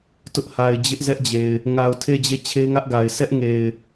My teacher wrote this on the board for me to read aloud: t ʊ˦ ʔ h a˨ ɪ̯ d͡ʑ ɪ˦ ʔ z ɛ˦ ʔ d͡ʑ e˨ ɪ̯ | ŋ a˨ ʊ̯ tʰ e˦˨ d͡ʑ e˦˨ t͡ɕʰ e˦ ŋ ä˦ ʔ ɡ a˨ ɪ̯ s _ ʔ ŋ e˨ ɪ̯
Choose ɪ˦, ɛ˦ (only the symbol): ɛ˦